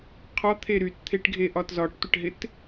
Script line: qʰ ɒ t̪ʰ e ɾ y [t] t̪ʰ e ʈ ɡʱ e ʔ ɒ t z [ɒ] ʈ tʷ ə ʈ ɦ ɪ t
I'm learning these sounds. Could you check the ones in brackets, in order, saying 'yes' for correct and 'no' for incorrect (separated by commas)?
yes, yes